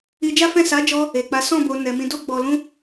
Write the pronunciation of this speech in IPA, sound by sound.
i˧d͡ʒa˦fɛ̃˦˨ sa˨˦d͡ʒɔ˧ | e˨k͡pa˨˦ sɔ̃˦˨ bo˧nɛ˧ mĩ˧do˦ɡ͡bɔ˧lũ˦

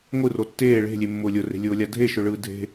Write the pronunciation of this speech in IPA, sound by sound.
ŋʷɯro tːeː ɭe̤lʲemːʊː lʲʊre̤lʲʊːlʲa dʱeʃʊɭɯː dʱe̤

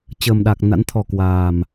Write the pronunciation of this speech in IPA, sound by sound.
t͡ɕəː˨˩mɗa˨˩k̚ na̰˧˥nt̪ʰɔ˨˩ kwaː˨˩m

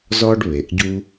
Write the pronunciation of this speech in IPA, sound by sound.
zɔ˦ɖ βe˩ʔɟu˦

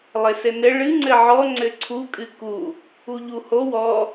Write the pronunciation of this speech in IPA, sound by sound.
lˠɘsɘnɘ ɭɨ ŋ͡ǀɘʕɔ ŋ͡ǀɘǀʰu kʼɨku | uʎuho wɔ

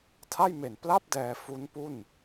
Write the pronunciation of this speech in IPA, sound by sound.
tʰa˥˩jme˨˩n pla˥˩p̚ dɛː˧ fu˦˥npu˥˩n

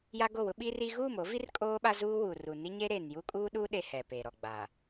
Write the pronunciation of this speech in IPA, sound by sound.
ja˦ɡo˦˨wʊ˦ ɓi˦ri˦ ɣuː˦˨mo˨˦vi˦r kʼoː˦ɓa˦zuː˦wu˨ ru˨ni˦ɲe˦ɾeː˨n ju˦kʼuː˦ɗuː˦ ɗe˦hɛ˨peː˨ɾɔ˨ ɡ͡ba˨

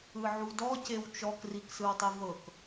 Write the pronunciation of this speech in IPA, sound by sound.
ɯʕudɔcew t͡ʃɔkriksɯwtˤi vɤk

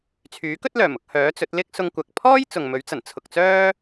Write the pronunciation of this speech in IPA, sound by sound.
t͡sʰyː˨˥kɵ˥t̚lœː˨˩m ʊ˧k̚ hœː˨˥t͡sɵ˨˥t̚ lɪ˥k̚sʊ˧ŋkʷɐ˨k̚ pʰɔː˥j t͡sʊ˨ŋmɵ˨˥ɥt͡sɐ˨˩n t͡sʰʊ˨k̚t͡sœː˥

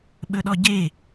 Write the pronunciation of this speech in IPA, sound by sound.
ɓɵɗɔɟe

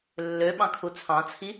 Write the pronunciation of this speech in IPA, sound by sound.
lːøɓɑ̃kʰu t͡sʰɑ̃t͡sʰi

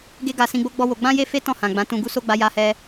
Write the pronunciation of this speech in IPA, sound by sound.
ɡe˦ɡa˧ sĩ˧ɡ͡bo˦ ɡ͡bɔ˦wo˧ ɡ͡bã˦je˦fe˦ tɔ̃˦˨hã˨ ɡ͡bã˨˦tũ˧ ɡu˦so˦ ɡ͡ba˧ja˧hɛ˧

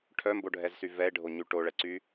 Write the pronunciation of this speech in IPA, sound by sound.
ʈʰœmboɖʱɛzsy vɛe̯ɖʱoɲy ʈoɭɛǀy

